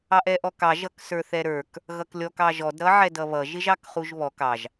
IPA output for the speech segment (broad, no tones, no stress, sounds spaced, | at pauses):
ɑ ʔ ɛ ʔ ɔ k ɑ ʒ ʌ k s ə˞ θ ɛ ɾ ə˞ k | ɣ ʌ k lʲ ɔ k ɑ ʒ ɔ d ɾ ʌ ʕ ɛ d ʌ β ʌ ʒ ɪ ʒ ɑ k χ u ʒ β ɔ k ɑ ʒ